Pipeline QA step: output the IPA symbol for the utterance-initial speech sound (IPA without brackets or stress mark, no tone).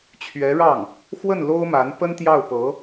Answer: t͡ɕʰ